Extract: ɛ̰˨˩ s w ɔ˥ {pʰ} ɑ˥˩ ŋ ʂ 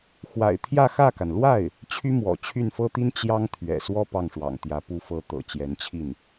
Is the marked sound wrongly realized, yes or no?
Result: yes